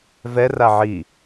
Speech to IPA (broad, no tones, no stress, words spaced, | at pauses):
vɛ raʕi